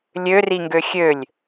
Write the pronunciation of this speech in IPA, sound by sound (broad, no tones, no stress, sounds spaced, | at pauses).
lʲ ø r i ŋ ɡ ø xʲ ø lʲ